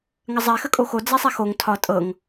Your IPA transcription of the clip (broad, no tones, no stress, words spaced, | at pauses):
ŋəzˤɛ xəkʼoxo d͡zɛsˤɛxoŋ tʰɒ tʼɤŋ